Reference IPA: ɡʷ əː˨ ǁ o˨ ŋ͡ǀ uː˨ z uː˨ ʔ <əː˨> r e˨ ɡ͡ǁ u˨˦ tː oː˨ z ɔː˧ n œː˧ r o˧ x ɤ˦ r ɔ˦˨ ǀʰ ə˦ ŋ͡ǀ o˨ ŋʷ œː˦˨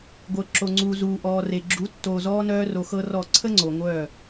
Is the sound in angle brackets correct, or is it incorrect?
incorrect